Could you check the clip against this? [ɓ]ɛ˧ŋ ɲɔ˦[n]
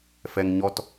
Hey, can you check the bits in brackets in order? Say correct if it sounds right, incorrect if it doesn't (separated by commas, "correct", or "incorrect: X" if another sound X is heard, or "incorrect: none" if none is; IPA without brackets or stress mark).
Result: incorrect: f, incorrect: t